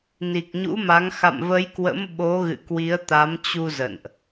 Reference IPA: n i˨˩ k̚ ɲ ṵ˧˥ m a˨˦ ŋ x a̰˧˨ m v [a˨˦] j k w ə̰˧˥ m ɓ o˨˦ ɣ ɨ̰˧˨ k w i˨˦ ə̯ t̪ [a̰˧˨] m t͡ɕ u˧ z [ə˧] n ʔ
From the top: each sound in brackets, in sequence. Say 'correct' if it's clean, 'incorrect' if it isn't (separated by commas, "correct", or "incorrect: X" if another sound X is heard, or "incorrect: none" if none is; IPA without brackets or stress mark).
incorrect: ə˨˦, incorrect: a˨˦, incorrect: ə̰˧˨